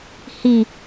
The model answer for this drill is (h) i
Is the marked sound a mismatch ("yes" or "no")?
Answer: no